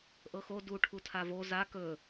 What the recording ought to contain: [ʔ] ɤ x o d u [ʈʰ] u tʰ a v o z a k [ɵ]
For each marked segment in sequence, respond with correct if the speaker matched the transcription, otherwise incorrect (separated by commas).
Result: correct, correct, correct